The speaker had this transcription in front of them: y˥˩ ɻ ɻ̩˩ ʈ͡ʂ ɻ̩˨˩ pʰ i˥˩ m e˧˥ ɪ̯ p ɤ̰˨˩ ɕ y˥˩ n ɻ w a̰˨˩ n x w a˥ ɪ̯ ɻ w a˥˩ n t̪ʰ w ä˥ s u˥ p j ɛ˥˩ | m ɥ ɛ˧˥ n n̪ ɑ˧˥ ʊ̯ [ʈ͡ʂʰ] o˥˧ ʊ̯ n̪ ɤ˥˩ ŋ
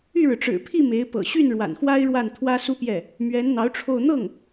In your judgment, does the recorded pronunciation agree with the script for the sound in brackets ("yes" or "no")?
yes